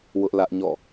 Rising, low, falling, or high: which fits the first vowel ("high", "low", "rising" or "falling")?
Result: high